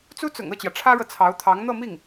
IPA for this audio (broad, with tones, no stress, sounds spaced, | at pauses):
t͡s u˥ t͡s ʊ̰˨˩ ŋ ɤ˥˩ t͡ɕ j ä˩ ʈ͡ʂʰ ä˥ ɻ ɤ˨ t͡sʰ ɑ˧˥ ʊ̯ t̪ʰ ɑ˧˥ ŋ n̪ ɤ˥˧ m i˥˩ ŋ